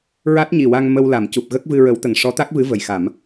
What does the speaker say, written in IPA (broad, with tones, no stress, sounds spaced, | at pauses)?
ɹ a˦˥ t̚ ɲ i˨˩ w a˧ ŋ m ə˧ w l a˨˩˨ m c u˨˩ p̚ ɣ ə˦˥ k̚ v ɨ˧ ɹ ə˨˩˦ w t̪ ə˨˩˨ ŋ ʂ ɔ˧˥ t̪ a˦˥ k̚ v ɨ˧˥ v ə˨˩ j x a˨˩˦ m